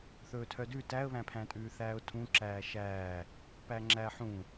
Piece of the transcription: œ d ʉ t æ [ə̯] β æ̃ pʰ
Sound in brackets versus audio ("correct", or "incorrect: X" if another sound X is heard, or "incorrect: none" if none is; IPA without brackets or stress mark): correct